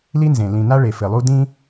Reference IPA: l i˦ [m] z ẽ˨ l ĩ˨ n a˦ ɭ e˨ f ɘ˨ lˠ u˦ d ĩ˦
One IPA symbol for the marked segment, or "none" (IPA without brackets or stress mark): n